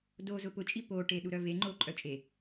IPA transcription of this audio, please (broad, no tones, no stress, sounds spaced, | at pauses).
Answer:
d o z ʊ p ʊ t͡ʃʼ i p o ʈ e ɗ u ɾ œ v e ŋ͡ǃ o ǃʼ œ t͡ʃʼ e